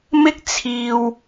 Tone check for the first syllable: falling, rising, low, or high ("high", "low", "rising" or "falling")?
high